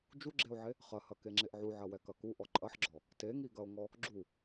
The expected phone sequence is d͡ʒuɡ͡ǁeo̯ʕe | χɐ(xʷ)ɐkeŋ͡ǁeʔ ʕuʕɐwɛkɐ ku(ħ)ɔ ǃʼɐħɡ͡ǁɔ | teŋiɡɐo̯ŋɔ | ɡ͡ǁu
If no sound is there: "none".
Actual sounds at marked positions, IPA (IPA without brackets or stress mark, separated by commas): h, ʔ